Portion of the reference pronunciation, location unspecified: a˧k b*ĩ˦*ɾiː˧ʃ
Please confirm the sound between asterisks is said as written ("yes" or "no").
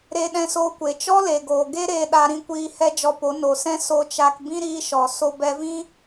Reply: yes